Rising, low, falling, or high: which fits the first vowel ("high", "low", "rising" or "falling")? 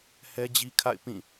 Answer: high